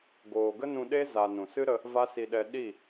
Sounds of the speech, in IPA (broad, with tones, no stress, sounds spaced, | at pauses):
ɡ oː˨ ɡ ə˦ n ũ˧ ɗ e˦ z a˧ n ũ˨ s ɨ˦ ɾ ə˧ | v a˦ s i˧ ɗ ɛ˧ ɗ i˦˨